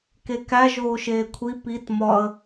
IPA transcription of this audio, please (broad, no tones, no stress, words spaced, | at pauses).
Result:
kekæ ʒoːʃeːkʷʰi pit mɒə̯